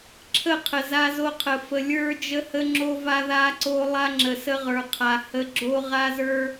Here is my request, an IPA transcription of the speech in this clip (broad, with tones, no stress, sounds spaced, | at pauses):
ǁʰ ə˦˨ qʰ ə˨ z a˦ z o˦ qʰ ə˨ f ə˨ lʲ ə˞˦ d͡ʒ ə˦ h ə˦ ŋ͡ǁ o˦ v a˦ ð a˦ ǀ o˦ lˠ a˦ ŋ͡ǁ ə˨ s ə˦ ʁ ə˞˨ qʰ a˨ h ə˦ ɡ͡ǁ o˦ ʁ a˦ z ə˞˦